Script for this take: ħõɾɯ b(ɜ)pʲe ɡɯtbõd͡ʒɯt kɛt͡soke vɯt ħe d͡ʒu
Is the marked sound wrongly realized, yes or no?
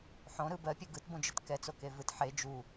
no